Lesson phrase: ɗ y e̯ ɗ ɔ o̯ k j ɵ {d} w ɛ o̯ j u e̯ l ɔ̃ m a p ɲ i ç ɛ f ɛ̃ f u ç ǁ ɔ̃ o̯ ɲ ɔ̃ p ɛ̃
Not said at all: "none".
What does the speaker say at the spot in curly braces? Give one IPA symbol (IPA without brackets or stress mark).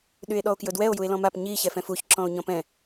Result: d